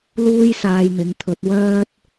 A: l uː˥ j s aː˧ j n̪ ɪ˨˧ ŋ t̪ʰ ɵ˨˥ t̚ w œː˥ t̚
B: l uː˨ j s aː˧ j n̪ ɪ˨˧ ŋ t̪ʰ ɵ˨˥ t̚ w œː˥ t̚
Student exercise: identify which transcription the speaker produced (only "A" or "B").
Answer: A